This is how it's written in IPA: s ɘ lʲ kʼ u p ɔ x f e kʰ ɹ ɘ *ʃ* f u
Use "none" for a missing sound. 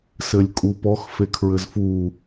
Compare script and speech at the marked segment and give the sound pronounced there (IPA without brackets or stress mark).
z